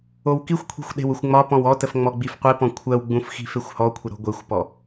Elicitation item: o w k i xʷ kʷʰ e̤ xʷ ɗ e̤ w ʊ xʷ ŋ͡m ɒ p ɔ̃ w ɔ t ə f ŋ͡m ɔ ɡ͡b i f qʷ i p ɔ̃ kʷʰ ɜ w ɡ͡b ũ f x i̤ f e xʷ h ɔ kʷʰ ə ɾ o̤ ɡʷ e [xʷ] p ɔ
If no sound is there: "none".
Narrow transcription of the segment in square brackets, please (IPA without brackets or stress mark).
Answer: xʷ